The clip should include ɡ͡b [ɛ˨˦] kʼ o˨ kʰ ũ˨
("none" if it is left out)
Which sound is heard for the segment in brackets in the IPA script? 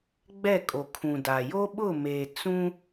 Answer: ɛ˦˨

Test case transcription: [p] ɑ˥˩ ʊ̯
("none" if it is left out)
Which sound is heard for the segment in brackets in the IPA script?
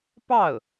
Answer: p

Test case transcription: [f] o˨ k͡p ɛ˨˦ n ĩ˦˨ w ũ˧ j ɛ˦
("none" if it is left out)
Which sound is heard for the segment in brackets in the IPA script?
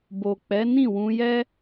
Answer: b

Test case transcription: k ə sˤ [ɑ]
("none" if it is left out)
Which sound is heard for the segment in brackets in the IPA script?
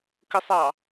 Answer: ɑ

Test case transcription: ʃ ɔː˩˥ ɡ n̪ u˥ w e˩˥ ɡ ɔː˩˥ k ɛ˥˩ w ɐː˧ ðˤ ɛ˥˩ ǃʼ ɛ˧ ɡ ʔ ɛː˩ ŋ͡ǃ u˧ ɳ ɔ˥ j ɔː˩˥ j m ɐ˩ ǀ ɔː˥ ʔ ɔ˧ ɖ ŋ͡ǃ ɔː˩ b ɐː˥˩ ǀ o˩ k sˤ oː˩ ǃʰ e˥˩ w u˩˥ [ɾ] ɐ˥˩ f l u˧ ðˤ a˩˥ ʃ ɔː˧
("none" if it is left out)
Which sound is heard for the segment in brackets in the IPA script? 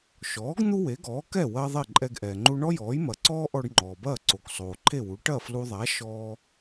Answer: ʈ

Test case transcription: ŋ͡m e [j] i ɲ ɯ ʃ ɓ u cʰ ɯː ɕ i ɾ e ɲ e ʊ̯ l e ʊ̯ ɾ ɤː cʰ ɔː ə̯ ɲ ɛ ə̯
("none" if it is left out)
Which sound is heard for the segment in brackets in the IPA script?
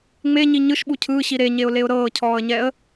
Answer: ɲ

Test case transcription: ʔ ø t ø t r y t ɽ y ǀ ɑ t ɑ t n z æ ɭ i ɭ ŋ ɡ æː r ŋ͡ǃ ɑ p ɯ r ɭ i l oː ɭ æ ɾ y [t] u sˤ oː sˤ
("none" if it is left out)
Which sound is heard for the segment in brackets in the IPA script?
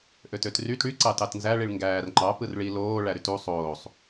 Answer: t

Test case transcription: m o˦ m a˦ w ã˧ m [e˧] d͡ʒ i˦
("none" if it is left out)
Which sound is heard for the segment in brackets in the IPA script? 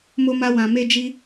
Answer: e˦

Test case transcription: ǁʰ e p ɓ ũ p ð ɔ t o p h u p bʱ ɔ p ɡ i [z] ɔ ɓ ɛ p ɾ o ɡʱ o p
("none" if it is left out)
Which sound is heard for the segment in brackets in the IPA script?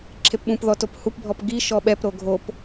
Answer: ʃ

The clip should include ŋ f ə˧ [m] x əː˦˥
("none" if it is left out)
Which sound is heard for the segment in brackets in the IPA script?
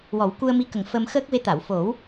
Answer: m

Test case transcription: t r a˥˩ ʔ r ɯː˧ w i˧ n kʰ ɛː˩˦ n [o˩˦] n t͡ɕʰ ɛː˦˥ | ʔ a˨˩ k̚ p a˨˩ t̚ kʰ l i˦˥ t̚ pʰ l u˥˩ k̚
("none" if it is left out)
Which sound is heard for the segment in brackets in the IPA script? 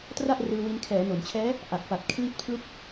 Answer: o˩˦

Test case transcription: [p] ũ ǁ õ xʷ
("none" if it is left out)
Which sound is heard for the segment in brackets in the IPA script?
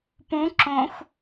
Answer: p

